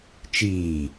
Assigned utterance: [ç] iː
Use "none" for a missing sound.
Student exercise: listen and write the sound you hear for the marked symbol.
t͡ʃ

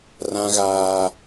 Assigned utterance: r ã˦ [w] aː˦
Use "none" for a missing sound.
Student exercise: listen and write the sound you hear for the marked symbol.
ɣ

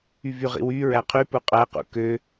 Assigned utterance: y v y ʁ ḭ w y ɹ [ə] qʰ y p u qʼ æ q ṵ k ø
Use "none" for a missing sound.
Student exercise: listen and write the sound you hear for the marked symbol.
æ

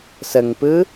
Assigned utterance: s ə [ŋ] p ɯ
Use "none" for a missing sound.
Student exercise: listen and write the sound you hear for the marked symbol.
ŋ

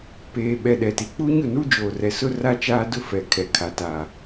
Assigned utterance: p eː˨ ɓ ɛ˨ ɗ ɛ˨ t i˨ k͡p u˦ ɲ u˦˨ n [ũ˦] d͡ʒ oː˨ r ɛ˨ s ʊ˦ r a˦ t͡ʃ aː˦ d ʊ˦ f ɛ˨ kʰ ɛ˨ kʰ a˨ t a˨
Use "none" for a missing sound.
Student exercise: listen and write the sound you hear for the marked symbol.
u˦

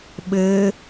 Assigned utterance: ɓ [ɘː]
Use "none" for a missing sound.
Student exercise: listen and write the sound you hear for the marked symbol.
ɘː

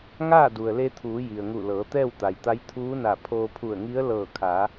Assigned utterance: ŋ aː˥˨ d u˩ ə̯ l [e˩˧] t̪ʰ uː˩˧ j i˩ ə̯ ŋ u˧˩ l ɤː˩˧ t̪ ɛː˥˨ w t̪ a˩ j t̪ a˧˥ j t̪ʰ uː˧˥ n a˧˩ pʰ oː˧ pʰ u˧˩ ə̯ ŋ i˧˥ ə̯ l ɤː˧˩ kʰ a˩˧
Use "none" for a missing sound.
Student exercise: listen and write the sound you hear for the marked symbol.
e˧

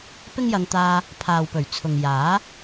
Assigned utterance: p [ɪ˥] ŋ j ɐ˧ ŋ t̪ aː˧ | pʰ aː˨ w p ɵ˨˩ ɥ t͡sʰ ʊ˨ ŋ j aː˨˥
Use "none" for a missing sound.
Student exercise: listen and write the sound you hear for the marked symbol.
ɪ˥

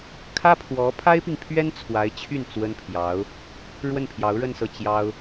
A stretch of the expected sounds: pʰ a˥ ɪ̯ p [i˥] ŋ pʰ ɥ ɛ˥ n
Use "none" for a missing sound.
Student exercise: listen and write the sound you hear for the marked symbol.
i˨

